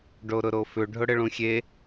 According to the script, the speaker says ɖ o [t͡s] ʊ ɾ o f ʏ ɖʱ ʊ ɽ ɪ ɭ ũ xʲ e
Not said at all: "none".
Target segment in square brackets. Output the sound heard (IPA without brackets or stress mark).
ɾ